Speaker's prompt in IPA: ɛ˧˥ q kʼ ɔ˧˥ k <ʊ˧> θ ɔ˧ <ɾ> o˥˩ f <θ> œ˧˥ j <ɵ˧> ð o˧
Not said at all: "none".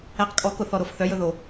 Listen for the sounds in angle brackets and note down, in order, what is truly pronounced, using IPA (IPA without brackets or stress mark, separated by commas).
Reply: ʊ˧, ɾ, θ, ɵ˧